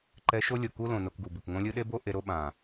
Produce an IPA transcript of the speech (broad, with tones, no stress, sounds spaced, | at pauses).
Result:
ǃ ɛ˧ ʃ o˦ lʲ o˨ k u˦ l õ˨ n o˧ k ɡ u˨ b ɯ˨ k ŋ õ˧ lʲ ɯ˧ ɗ e˦ b o˦ ʔ e˧ ɾ o˦ ɓ ã˨